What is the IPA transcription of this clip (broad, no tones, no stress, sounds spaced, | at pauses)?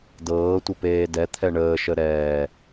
d ɤː tʷ ə p eː d ɛ t̪ʰ ɛ ɳ əː ʃ ə ɾ ɛː